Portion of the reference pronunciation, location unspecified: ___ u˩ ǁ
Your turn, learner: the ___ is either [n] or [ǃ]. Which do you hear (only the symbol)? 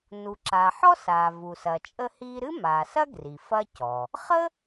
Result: n